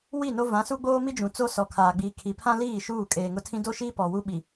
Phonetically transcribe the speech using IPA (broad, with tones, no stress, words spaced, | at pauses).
wi˦˨no˦ vã˨˦su˦ɡ͡boː˦mi˦ d͡ʒũ˨t͡so˦sɔ˨ kʰaː˨ɡ͡biː˨kʰi˨ pʰã˦liː˦˨ ʃuː˦˨ kʼeː˨ŋʊ˦tʰĩ˦ do˦ʃiː˦ pɔ˨wu˦ɓi˨